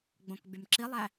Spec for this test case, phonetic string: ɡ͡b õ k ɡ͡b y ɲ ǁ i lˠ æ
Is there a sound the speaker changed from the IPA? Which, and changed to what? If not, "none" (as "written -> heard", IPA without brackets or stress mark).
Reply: ɲ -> m